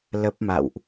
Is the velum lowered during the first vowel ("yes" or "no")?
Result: no